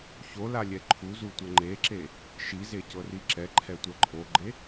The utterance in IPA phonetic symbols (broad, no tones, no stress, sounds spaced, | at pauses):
ç o l a lʲ ɛ ǃʰ u z u tʷ ɤ ŋ͡ǃ e ǁ e | ʃ i z e c ɤ r i ǁ ɛ ǃʰ ɛ tʷ ɛ ǃʰ o ɡ͡ǃ e